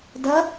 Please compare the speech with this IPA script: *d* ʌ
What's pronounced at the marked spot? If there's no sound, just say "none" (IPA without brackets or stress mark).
d